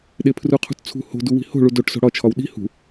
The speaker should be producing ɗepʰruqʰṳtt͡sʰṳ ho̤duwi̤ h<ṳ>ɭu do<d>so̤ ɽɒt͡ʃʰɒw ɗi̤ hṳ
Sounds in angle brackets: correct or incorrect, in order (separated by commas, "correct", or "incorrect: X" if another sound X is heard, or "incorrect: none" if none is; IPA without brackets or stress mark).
incorrect: o̤, incorrect: ʈ